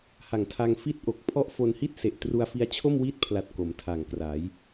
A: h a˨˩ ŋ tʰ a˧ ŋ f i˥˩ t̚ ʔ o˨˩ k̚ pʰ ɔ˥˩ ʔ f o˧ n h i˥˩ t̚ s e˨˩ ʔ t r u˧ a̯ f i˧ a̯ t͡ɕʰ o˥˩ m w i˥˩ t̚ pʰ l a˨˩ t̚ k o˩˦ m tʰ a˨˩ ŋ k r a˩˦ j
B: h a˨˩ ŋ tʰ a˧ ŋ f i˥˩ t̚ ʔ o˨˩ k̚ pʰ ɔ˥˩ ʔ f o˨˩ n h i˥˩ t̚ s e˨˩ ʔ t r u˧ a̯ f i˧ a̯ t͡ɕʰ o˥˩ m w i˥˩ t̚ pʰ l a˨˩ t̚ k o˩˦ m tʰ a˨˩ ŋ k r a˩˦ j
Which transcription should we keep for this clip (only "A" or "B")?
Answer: A